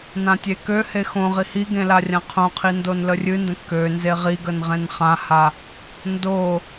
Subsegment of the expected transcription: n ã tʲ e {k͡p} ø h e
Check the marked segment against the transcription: incorrect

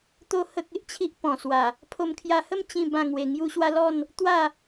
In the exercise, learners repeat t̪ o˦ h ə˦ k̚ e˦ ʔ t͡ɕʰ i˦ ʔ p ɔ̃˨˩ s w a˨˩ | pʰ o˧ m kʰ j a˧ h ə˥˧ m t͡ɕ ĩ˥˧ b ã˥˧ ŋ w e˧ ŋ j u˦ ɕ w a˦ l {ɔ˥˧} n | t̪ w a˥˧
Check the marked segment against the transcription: correct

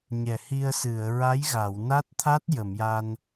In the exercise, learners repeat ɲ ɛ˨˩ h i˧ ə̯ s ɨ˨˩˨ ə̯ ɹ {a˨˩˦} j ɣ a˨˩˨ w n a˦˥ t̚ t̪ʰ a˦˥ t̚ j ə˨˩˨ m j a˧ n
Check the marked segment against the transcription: incorrect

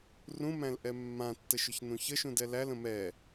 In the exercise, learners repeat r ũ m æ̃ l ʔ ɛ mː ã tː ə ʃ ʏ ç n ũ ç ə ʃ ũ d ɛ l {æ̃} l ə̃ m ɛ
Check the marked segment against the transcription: incorrect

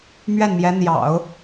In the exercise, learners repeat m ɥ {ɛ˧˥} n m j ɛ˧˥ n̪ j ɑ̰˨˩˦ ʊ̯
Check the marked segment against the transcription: incorrect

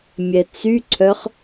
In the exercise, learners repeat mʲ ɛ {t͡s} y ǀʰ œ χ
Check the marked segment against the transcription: correct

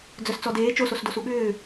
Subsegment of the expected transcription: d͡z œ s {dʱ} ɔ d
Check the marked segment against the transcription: incorrect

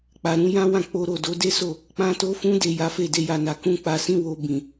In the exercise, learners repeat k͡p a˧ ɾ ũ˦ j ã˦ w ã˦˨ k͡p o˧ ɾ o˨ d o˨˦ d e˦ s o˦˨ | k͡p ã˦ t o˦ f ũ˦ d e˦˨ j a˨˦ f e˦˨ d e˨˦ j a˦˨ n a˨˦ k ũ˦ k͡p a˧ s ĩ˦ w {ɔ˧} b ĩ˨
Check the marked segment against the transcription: incorrect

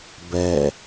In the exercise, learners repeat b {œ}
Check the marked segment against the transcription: incorrect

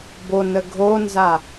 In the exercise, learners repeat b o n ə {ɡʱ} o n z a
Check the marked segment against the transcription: correct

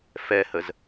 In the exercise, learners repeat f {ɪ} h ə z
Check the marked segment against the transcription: incorrect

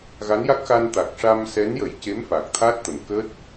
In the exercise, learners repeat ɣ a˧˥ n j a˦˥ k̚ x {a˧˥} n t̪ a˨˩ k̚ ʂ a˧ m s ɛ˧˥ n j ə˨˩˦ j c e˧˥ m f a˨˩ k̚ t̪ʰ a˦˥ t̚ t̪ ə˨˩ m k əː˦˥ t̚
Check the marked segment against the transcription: incorrect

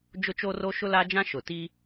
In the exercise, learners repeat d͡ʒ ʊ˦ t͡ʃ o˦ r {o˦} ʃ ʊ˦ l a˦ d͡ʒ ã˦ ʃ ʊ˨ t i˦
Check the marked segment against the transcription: correct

